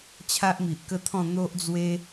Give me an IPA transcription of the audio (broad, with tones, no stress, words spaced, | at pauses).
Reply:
t͡ɕʰa˦ʔmi˨ʔkə˥˧t̪ʰɔ̃˥˧ n̪o˦ʔd͡zwe˦